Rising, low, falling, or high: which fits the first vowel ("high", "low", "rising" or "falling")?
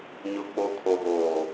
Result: high